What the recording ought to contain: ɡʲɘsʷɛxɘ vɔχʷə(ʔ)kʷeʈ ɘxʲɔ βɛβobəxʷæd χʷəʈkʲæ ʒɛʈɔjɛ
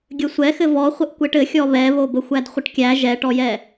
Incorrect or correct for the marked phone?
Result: correct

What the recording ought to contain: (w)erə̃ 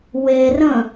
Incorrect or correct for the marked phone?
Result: correct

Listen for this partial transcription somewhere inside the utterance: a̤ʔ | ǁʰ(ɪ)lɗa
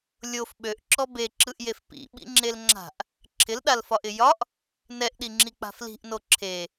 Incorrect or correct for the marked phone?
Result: correct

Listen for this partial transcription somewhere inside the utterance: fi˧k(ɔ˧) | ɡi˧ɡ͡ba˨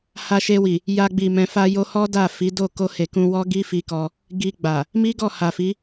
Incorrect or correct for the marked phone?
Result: correct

